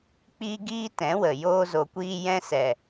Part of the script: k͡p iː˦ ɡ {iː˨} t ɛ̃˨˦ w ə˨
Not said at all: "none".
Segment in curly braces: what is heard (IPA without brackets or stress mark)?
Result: iː˦